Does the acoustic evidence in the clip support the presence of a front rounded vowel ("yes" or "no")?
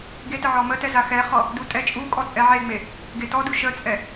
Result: no